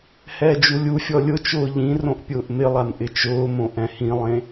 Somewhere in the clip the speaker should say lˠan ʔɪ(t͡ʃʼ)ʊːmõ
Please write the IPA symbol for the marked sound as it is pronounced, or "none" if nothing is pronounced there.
t͡ʃ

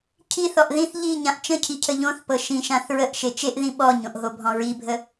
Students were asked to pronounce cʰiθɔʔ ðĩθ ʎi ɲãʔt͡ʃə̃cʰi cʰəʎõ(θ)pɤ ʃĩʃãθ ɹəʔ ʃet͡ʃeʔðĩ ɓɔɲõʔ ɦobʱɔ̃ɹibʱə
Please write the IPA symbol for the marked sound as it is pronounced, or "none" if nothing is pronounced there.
θ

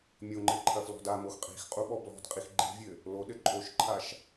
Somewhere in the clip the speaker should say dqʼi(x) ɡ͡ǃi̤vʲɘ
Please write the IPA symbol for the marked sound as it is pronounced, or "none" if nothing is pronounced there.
x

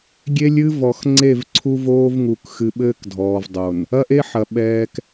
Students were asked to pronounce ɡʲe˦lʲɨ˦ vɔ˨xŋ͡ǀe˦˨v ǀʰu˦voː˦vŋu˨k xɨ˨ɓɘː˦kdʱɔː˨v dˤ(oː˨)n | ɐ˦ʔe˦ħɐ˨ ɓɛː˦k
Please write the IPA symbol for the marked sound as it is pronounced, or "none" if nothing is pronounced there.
o˨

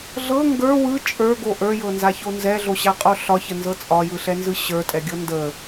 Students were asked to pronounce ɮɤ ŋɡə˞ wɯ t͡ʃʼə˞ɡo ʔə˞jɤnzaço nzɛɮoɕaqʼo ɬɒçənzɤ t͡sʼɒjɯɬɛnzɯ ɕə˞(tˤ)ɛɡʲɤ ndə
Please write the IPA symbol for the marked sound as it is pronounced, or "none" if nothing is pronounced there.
tʼ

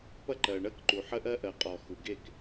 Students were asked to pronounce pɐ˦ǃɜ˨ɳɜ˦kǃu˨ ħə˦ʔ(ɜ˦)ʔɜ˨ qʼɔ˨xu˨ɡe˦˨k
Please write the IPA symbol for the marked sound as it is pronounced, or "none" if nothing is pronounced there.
ɜ˦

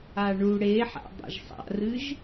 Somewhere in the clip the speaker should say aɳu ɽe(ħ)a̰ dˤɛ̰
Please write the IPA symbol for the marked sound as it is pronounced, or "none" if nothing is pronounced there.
ħ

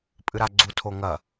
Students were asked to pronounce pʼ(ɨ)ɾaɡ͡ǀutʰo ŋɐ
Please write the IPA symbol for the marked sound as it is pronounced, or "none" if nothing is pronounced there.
ɨ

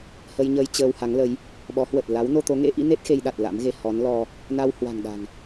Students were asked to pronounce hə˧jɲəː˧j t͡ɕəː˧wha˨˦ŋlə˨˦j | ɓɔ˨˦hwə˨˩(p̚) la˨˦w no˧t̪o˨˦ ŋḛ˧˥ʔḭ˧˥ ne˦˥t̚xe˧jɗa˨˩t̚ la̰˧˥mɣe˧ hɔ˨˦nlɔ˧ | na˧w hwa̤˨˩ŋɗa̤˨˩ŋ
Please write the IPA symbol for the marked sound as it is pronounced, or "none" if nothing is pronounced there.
t̚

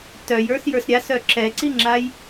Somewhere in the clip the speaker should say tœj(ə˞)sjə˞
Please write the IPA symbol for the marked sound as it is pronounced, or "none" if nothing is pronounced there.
ə˞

